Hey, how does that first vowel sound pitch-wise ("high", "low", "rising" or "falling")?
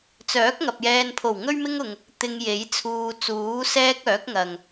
rising